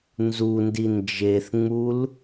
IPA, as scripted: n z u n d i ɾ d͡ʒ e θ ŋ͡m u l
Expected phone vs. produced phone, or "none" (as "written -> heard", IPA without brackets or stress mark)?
ɾ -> n